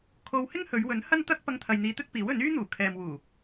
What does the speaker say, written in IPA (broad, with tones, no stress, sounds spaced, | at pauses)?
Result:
kʰ o˧ w h ɪ˥ ŋ h ɵ˨˧ ɥ w ɵ˨˥ n h ɐ˥ n t̪ ɐ˥ k̚ p ɐ˧ ŋ t̪ʰ ɐ˨ j n̪ iː˨˧ t̪ ɵ˥ t̚ p iː˨˥ w ɵ˨˥ n yː˥ n̪ uː˨˩ kʰ ɛː˨ m w uː˨˩